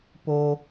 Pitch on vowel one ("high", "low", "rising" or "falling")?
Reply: high